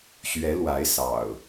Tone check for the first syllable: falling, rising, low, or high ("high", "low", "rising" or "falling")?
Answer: rising